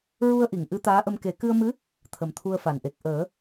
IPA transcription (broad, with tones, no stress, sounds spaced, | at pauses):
ɹ u˧ ə̯ ʔ i˨˩˨ ŋ ʔ ɨ˧˥ t̪ aː˧˥ ʔ ə˧ m k e˨˩˦ k ɨ˧ ə̯ m ɨ˧˥ | t̪ʰ ə˨˩ m t̪ʰ u˧ ə̯ f a˨˩˨ n ʔ e˨˩ k̚ ʔ əː˨˩˦